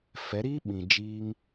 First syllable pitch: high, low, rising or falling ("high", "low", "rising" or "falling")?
rising